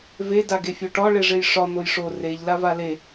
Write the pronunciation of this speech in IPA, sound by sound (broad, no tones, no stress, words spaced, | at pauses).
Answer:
ve daɡefʲoʈɒ ɭeʐejʂɒ n̪ojʂo reʎ lavale